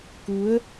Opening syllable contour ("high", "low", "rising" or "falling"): rising